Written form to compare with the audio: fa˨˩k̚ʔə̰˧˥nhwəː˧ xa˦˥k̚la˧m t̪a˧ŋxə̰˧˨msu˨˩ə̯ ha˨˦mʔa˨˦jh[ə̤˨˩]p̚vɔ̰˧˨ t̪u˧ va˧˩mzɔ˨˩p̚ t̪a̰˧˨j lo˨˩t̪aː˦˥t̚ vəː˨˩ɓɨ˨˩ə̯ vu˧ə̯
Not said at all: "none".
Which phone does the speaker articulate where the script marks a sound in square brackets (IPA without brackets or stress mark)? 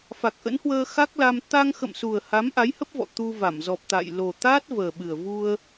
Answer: ə˦˥